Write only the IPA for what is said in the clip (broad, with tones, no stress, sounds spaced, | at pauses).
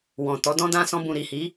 w ɔ̃˨ t ɔ˨˦ d ɔ̃˦ d ã˧ s ɔ̃˧ b ũ˨ ɾ i˨ h i˨˦